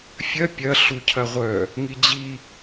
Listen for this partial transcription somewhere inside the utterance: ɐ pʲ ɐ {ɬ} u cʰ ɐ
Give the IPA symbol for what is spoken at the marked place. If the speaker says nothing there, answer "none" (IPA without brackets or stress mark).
ɬ